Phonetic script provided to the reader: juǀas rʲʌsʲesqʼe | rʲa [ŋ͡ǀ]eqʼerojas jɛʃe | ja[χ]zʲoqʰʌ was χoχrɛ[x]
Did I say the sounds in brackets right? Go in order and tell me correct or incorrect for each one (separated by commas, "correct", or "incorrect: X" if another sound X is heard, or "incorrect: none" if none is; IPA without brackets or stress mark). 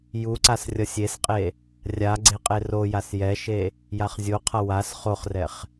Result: incorrect: ɡ͡ǀ, correct, incorrect: χ